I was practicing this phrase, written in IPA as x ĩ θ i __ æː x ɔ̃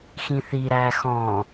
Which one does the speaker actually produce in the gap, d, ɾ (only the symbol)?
ɾ